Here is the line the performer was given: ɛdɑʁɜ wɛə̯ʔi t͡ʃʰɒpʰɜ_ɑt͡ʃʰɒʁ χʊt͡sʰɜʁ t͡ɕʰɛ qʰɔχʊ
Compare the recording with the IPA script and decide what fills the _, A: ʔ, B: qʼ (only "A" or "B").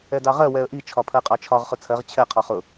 B